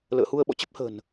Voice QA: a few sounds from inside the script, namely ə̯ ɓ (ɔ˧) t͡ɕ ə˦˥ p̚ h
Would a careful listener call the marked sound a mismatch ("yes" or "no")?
yes